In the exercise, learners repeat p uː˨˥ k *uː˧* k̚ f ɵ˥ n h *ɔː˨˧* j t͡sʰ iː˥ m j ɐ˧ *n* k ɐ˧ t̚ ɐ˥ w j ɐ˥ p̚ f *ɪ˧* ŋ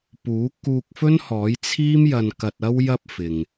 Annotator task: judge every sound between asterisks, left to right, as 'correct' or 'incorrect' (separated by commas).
correct, incorrect, correct, incorrect